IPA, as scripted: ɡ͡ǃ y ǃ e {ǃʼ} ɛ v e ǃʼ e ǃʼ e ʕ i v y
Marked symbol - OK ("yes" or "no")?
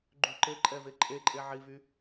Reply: yes